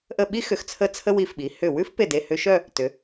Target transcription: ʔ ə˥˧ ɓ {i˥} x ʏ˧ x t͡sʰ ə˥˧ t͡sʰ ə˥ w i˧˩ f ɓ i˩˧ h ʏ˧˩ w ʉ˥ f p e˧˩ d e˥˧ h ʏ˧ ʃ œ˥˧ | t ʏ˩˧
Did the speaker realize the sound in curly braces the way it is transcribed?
yes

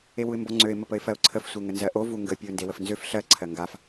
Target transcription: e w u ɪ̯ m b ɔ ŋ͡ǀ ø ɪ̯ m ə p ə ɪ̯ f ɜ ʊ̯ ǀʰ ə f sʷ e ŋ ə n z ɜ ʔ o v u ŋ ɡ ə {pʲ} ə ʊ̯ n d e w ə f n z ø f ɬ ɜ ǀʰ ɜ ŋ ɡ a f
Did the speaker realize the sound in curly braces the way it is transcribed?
yes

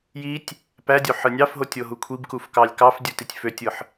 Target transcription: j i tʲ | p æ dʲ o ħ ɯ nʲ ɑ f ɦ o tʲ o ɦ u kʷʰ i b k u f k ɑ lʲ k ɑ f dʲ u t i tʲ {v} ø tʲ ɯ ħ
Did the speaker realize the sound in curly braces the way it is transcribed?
no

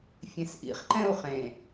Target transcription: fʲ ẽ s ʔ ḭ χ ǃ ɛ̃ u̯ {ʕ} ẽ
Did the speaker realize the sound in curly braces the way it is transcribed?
no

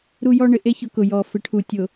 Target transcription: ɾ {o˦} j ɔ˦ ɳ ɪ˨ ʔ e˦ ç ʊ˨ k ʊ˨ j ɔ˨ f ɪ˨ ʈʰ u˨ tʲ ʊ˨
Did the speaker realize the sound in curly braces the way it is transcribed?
no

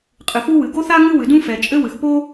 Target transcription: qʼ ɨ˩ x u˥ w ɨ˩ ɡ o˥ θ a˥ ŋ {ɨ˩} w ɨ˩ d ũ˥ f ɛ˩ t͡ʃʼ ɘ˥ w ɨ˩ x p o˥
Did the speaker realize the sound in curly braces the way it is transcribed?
no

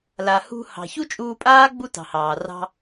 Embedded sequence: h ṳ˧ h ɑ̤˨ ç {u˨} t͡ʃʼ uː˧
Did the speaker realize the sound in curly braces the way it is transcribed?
no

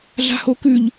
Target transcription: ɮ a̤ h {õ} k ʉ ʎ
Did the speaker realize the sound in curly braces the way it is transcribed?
no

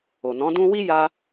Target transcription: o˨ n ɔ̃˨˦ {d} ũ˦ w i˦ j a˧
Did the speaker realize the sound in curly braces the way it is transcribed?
yes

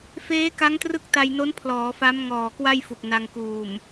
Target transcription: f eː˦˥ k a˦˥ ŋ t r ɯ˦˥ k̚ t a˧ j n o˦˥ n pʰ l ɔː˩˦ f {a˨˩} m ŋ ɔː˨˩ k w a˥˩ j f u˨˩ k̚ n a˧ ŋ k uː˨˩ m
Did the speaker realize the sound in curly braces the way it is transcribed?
no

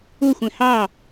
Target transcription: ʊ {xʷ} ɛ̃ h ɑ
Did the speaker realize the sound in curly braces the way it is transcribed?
yes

